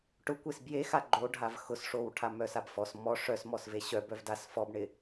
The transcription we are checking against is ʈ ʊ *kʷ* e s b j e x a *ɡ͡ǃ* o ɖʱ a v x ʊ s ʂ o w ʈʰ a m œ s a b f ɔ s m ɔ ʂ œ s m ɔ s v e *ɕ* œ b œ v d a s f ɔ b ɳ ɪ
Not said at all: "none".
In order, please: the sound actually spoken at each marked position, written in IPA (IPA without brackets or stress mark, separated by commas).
kʷ, ɡ͡ǃ, ɕ